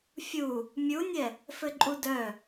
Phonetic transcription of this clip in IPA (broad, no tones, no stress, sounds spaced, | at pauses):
fʲ u | mʲ u nʲ ɛ | f ɘ ǃʼ u d œ